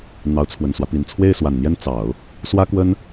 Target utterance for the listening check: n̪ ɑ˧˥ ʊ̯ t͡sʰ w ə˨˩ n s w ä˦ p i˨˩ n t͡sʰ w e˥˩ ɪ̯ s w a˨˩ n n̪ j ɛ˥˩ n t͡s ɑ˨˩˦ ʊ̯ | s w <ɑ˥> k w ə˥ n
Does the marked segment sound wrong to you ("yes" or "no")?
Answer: yes